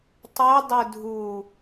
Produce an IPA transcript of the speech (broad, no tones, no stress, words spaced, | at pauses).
tˤɵdˤɵ dʱu